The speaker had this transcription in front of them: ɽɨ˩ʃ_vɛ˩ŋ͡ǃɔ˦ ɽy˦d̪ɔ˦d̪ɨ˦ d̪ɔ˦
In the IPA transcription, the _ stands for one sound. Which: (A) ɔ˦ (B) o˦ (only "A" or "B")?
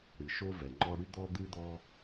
B